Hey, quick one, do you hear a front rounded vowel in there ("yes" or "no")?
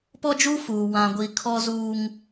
no